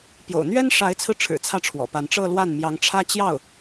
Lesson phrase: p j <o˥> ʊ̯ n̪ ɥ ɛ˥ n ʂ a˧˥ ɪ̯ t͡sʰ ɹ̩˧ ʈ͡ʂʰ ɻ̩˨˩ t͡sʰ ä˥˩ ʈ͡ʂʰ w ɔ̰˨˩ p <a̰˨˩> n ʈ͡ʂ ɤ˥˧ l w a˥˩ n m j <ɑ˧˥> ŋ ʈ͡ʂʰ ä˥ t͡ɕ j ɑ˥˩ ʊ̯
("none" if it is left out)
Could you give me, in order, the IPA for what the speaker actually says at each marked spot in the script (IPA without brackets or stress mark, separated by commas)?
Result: o̰˨˩, a˧˥, ɑ˧˥